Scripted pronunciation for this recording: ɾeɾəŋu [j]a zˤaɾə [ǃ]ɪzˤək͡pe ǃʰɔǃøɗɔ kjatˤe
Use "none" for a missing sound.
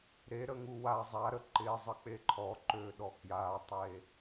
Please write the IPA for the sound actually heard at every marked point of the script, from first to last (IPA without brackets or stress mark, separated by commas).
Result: w, ǃ